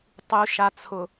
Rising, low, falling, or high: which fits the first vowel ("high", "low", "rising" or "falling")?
low